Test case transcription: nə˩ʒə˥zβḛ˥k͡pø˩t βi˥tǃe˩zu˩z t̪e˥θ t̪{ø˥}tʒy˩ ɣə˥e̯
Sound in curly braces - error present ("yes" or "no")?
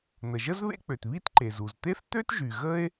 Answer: no